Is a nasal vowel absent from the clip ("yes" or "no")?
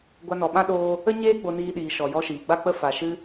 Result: no